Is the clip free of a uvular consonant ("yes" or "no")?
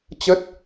yes